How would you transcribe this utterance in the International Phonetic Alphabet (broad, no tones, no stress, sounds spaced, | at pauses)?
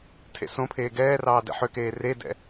tʰ ḛ s õ pʰ eː ɡ ɛː r ɑː d ɛ̰ ħ ø k eː r e d ɛ̰